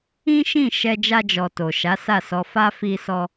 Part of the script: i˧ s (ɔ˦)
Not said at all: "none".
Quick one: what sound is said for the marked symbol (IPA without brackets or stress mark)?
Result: ɔ˧